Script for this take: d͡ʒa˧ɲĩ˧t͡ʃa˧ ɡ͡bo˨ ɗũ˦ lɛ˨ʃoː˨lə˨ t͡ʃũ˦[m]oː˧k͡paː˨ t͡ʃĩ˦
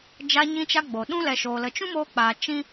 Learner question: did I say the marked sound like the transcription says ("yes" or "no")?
yes